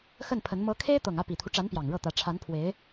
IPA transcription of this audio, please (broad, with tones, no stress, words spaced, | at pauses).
xə˥˩npʰə˧˥n mɤ˧˥kʰe˥ɪ̯t̪ɤ˨˩ŋ ä˥˩pi˨˩t̪ʰu˦ʈ͡ʂa˧˥n pjɑ˨˩ŋ ɻɤ˥˩t̪ä˧˥ ʈ͡ʂʰa˧˥npʰwe˧˥ɪ̯